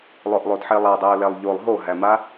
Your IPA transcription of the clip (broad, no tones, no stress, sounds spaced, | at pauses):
lˠ ʊ ʔ lˠ o d ħ e lˠ a dˤ ɛ ʊ̯ l ɛ lˠ ʎ o lˠ ɦ o ɦ æ m a